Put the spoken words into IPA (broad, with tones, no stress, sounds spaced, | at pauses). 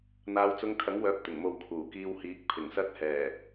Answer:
n̪ aː˨˧ w t͡s ʊ˧ ŋ kʰ ɐ˨˥ ŋ w œː˨˥ p̚ t̪ ɪ˨˩ ŋ m o˨ w kʰ uː˨˩ k iː˧ w h iː˨˥ k̚ pʰ ɪ˨˩ ŋ s ɐ˧ t̚ h ɛː˨˩